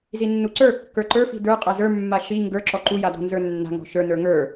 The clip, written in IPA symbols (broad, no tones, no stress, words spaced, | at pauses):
zinːuǀə˞kːə˞ ǃə˞fi̤ d̪ə˞ qʼazə˞mːa ʃi ŋɡə˞ ǁɔǃuja d̪ɔ̤nzə˞nːa̤ŋɔ̤ ʃə˞nə˞ ŋə˞